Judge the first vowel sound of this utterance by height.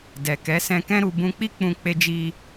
mid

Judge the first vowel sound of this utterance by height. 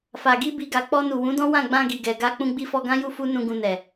low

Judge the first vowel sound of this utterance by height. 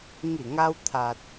high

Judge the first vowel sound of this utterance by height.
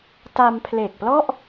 low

